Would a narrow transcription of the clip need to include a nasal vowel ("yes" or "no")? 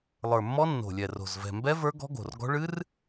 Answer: no